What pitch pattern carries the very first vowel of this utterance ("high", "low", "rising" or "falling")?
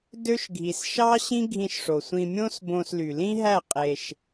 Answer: high